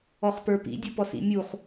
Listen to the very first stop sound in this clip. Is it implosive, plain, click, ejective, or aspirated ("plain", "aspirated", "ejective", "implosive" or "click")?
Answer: plain